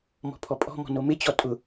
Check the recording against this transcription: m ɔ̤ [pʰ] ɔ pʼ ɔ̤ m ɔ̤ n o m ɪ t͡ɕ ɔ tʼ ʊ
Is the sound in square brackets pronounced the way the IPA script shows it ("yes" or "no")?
yes